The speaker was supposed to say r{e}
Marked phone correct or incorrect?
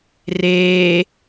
incorrect: eː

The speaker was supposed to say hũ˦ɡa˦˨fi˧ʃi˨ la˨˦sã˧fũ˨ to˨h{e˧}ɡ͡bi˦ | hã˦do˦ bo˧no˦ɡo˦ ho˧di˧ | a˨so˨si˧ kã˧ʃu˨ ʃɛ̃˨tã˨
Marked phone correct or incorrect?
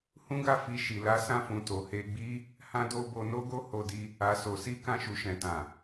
correct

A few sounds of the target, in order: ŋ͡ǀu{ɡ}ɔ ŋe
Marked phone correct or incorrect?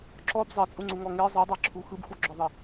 incorrect: ŋ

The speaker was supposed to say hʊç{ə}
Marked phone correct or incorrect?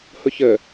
correct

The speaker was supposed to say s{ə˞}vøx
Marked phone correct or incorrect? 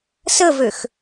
incorrect: ə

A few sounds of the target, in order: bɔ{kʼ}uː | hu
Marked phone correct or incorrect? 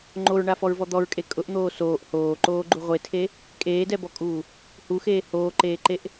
correct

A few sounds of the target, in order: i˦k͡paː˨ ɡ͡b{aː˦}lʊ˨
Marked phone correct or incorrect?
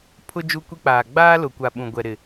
correct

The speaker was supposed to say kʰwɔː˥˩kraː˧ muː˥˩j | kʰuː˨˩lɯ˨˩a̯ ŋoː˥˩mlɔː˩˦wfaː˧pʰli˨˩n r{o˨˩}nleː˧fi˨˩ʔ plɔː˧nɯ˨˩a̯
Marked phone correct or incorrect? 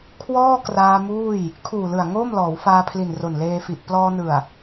correct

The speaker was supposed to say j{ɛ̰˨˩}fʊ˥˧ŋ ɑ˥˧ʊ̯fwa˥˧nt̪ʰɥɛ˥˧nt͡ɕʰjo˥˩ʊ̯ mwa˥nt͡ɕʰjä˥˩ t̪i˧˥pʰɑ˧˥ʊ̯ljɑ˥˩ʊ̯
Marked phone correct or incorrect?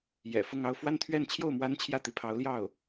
correct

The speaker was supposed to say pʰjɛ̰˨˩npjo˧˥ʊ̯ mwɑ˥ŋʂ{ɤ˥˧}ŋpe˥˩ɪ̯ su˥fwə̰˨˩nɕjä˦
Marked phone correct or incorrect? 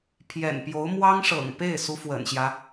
incorrect: ɤ̰˨˩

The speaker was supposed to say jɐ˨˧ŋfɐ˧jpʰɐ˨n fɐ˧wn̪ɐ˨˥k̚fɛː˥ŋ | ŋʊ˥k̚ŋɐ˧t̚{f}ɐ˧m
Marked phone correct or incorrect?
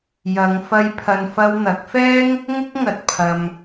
incorrect: pʰ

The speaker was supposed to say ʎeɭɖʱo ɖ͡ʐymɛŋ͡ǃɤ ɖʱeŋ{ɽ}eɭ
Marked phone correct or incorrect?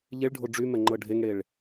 correct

